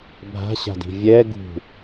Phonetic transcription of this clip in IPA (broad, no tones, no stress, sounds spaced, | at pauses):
bʱ a̤ ɕ a̤ d i̤ vʲ ɛ ɡ ṳ